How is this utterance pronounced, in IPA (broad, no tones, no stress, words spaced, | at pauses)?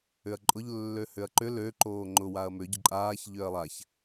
ʏɐ̯ǃʼʊʎ lːøhʏɐ̯ǃʏ lø ǃoːŋ͡ǃʊ waɐ̯mʏ ɟʏǃʼaːç ʎøɐ̯lˠaç